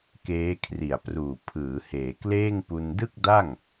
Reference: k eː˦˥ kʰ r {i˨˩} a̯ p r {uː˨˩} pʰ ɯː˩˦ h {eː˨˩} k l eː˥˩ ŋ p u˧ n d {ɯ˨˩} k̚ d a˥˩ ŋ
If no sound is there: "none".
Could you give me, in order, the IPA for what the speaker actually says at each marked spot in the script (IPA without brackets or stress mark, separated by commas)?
i˨˩, uː˨˩, eː˩˦, ɯ˥˩